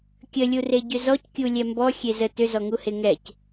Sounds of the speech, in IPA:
kʲəlʲure ɟʏzɔckʲu lʲɛmbɔ xʲezə tʏzɔŋuhe ŋɛc

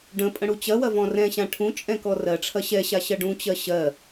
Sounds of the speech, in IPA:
ɖə̃ pʼə̃ɽut͡ɕɐwɐ vɔ̃rɛ̃ɕã ʈʰũ t͡ʃʼɛ̃kɔrɜʈ͡ʂʰɐ ɕɛɕa ɕɐɖũt͡ɕɜ ɕɜ

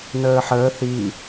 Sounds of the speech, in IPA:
nəːħəː θi

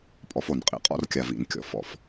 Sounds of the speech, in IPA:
pʼɔ˨˦fo˨˩nqʼḭ˨˦ qʼɔ̰˥˨rkʲa˨˩ vḭ˨˩nkʲɔ̰˨˩˦f ɔ̰˨˩f

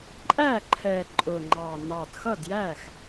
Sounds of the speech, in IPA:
ǃʼæ˥˩ǃʰɛ˨˩ ǃʼʊ˨˩ŋ͡ǃɑ˨˩ nɑ˨˩d xʌ˥˩djæ˥˩x

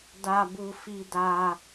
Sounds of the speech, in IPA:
da˧bu˧ fi˧da˧

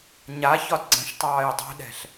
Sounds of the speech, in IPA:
ɲa çɒdɡ͡ǀə̃ʃtˤɑːj dˤo̤ɗɛ̤ɬ

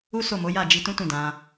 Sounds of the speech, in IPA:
u˦so˦˨mo˨˦ ja˦˨d͡ʒi˧tũ˦ tũ˦˨dã˧

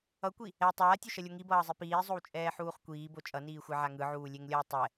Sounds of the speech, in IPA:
ʌkʷi | ɛ tˤaːtʲoʃʌlʲo ŋibʌːzˤi piːzˤowt͡ʃʼɛːħuːχ kʷiːbo t͡ʃʼʌniːxʷɛʕa ŋɯʕuːlʲeŋlʲʌː tˤɛ

